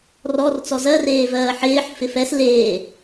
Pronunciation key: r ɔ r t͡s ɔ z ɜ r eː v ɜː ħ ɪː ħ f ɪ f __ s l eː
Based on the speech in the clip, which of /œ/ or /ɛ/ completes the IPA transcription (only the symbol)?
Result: ɛ